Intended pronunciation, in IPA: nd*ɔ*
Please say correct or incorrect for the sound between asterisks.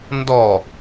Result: correct